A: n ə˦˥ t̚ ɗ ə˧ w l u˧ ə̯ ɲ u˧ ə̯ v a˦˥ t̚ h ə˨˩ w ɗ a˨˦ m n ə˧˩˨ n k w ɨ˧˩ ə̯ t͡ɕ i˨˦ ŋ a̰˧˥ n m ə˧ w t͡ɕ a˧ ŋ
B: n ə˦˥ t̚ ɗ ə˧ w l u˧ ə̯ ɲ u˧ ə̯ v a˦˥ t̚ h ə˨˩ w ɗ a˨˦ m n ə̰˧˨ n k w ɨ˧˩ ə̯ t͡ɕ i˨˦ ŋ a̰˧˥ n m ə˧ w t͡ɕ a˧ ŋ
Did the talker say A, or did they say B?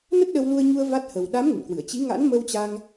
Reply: B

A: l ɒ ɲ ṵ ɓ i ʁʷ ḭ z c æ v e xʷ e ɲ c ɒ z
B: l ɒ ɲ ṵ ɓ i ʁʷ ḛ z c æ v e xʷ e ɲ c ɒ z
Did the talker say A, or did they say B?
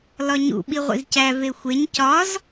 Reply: A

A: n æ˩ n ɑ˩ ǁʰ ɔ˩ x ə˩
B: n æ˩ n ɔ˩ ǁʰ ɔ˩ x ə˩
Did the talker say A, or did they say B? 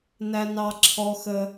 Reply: A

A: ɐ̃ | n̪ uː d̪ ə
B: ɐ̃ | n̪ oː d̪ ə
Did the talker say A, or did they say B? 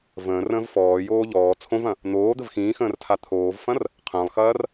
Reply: B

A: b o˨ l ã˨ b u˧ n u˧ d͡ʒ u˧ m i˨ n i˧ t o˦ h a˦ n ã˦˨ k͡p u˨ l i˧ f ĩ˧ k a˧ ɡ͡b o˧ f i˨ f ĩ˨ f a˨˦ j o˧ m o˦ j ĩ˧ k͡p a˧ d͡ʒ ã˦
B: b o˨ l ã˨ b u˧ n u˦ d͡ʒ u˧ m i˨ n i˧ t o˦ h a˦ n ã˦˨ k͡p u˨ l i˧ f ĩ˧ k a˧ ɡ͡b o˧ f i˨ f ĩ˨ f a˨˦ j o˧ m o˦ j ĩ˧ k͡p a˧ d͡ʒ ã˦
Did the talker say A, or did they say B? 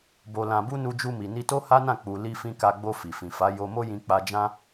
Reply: A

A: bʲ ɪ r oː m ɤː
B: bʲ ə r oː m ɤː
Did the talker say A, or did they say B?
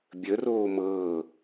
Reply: B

